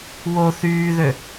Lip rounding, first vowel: rounded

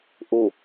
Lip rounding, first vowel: rounded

